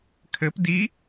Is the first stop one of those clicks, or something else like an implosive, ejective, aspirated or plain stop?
aspirated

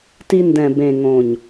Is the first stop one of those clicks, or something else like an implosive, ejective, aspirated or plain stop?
plain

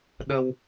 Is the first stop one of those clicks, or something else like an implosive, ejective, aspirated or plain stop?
implosive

